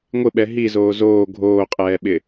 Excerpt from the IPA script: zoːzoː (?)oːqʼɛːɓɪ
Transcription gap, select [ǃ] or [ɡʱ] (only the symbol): ɡʱ